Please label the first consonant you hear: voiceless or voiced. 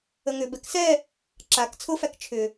voiced